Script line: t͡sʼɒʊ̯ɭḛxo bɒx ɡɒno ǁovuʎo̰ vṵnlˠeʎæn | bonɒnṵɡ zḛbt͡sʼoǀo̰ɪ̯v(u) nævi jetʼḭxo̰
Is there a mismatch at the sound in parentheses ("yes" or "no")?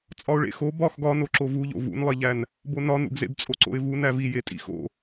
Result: no